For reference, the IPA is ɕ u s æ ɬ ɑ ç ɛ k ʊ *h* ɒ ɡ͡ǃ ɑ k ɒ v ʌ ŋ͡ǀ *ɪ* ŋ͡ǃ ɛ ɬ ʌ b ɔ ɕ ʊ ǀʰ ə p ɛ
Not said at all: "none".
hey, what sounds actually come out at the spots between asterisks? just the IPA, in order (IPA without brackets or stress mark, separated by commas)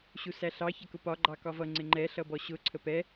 p, ɪ